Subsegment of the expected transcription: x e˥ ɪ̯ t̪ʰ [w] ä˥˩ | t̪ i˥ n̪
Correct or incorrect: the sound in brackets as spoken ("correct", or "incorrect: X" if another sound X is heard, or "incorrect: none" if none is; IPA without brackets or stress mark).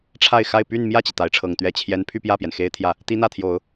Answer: incorrect: j